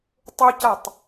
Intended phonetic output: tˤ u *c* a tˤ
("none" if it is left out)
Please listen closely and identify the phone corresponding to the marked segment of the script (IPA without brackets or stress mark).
c